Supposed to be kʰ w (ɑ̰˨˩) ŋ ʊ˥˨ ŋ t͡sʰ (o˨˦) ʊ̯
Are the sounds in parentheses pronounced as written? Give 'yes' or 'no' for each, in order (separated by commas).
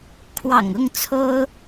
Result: yes, no